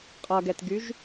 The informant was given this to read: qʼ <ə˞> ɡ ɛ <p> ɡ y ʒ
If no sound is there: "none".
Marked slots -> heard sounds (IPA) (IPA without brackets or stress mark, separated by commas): ʌ, t